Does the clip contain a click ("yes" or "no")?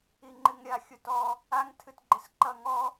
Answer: yes